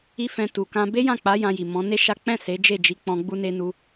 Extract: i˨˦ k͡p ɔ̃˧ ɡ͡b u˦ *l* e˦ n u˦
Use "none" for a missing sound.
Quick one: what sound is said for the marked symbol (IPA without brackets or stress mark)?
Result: n